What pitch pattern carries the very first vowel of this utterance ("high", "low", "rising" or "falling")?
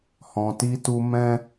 low